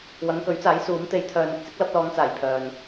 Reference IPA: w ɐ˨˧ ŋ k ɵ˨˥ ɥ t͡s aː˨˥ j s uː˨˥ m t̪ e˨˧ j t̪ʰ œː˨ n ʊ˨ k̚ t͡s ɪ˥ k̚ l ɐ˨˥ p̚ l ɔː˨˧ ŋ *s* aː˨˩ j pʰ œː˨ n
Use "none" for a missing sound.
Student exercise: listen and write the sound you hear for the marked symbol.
t͡s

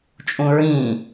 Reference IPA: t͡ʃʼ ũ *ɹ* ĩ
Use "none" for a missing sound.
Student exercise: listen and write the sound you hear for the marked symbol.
ɹ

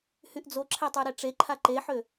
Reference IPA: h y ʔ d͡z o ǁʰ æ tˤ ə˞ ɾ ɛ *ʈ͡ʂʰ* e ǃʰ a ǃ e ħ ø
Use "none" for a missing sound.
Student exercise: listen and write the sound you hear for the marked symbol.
ʈ͡ʂ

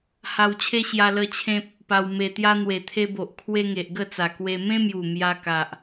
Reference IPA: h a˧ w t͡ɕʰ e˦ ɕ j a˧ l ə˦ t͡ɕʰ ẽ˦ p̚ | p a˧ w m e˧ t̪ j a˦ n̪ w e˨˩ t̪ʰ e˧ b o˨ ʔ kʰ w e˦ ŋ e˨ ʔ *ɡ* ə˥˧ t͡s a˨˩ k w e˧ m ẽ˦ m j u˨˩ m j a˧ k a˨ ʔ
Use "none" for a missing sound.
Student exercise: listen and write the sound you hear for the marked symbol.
ɡ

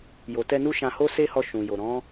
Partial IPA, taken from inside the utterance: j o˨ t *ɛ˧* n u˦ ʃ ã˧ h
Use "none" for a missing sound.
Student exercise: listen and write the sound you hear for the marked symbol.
ɛ˧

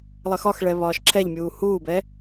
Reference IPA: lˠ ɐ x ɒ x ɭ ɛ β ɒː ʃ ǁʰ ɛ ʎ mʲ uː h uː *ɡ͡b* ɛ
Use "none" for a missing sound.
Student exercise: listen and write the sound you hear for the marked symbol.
b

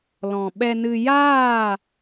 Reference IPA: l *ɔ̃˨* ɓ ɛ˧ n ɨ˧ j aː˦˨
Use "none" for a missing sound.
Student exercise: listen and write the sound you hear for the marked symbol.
ɔ̃˨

